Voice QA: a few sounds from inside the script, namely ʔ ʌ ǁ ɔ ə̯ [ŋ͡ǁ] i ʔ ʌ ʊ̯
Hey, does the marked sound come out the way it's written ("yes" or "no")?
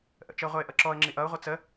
yes